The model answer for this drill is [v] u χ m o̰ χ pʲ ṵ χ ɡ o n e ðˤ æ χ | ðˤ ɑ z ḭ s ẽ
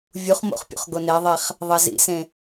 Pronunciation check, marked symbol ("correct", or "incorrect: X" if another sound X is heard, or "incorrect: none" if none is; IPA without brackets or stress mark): incorrect: vʲ